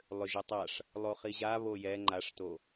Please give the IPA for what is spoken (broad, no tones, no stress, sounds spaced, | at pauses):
lˠ ø ʒ ɛ tˤ a ʂ | lˠ o χ i ʑ a β o j ɛ ŋ͡ǃ a ʂ t o